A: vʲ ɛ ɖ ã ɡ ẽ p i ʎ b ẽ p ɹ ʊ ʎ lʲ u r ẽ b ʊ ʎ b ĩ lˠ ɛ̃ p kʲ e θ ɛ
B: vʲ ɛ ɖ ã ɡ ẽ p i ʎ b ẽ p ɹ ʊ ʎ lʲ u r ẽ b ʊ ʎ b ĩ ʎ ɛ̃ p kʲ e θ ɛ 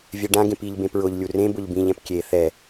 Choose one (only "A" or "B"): B